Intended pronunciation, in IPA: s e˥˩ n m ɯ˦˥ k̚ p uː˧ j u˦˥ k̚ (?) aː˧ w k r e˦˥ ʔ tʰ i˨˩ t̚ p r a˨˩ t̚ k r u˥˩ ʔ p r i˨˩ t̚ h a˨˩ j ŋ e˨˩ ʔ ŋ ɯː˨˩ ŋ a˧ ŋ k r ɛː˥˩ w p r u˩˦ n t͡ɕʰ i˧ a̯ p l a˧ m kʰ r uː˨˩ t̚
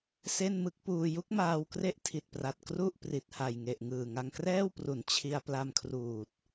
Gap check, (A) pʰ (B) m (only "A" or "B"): B